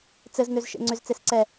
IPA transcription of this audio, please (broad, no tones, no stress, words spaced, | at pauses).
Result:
t͡sɘz nøzʃḛŋ͡ǀʏz t͡sesǀɛ